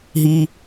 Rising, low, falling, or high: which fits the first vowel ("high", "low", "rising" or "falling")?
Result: low